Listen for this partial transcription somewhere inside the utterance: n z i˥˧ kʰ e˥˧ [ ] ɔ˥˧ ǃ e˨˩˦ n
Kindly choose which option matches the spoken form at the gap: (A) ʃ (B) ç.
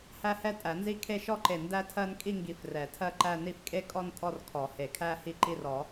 A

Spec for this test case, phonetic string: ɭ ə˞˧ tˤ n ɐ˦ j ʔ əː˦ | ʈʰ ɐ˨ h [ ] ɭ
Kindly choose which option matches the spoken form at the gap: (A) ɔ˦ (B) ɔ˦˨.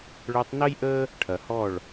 B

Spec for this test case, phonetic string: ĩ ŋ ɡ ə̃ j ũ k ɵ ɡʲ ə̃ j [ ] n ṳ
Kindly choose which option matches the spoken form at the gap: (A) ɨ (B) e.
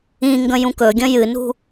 A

